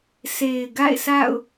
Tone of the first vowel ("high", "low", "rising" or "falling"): low